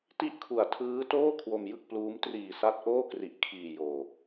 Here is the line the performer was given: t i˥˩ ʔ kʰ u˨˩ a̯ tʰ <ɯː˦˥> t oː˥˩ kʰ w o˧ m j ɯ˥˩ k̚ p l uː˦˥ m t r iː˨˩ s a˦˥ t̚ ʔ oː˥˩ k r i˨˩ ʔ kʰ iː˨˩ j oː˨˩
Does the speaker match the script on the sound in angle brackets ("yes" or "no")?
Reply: yes